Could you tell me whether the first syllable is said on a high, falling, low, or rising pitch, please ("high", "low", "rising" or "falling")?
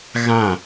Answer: falling